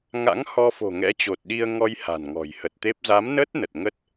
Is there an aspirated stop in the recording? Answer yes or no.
no